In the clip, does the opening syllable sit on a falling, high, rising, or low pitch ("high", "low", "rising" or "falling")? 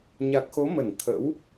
low